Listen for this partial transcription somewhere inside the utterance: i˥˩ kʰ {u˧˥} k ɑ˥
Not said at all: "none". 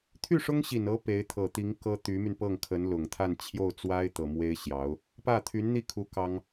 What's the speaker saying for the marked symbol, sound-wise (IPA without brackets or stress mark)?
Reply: u˧˥